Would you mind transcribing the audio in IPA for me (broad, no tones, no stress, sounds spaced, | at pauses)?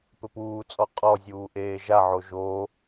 p ɘ p uː t͡sʼ ɔ qʼ ɔ zʲ uː ʔ eː ʒ a ʕ o ʒ o